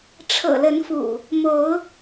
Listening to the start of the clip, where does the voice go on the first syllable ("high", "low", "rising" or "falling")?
low